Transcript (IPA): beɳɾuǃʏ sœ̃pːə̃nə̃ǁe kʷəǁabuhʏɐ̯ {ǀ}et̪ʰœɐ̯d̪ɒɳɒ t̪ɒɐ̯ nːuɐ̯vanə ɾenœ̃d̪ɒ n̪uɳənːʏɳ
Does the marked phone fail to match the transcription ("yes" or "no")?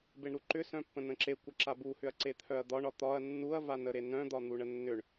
no